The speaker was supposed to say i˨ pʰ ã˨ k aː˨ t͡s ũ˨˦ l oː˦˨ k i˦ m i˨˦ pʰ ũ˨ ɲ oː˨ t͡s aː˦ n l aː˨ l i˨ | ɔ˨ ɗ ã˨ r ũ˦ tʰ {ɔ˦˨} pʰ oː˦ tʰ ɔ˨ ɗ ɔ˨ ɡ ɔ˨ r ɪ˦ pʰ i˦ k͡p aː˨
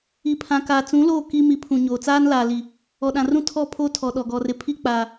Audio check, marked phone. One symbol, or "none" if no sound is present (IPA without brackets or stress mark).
ɔ˦˨